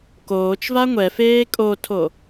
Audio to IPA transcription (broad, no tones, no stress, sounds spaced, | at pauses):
k oː t͡ʃ v a ŋʷ ɛ f eː kʼ o tʰ o